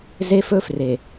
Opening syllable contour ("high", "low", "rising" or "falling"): high